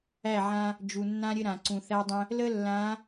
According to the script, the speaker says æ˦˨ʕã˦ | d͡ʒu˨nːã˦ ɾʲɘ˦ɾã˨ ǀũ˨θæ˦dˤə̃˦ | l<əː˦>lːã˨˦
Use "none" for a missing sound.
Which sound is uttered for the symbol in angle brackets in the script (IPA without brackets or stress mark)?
ə˦